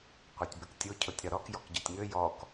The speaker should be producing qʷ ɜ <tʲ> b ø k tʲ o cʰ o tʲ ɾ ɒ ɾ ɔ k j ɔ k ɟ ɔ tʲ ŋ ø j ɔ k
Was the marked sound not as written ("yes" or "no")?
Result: no